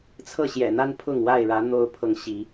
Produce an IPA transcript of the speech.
t͡sʰɤ˥˨ɕjɛ̰˨˩n̪a˦n pʰʊ˥˨ŋwa˥˨ɪ̯ɻä˨˦ n̪o˦ʊ̯pʰɤ˨ŋ ɕi˨˦

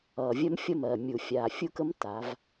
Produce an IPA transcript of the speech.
ʌː˨vʲɜ˦mfʲʌ˦mɜː˨ mʲu˨ fʲaː˨fʲu˦kə˦m ta˨˦v

